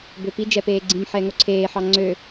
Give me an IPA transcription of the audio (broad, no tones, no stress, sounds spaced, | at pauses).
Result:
b ø p i d͡ʒ ɛ p eː ɡ͡ǀ ĩ m ħ ɛː ŋ o ǀʰ eː ħ ɑ ŋ͡ǀ ø